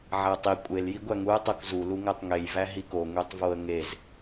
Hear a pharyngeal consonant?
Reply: yes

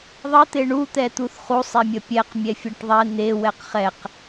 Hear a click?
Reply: no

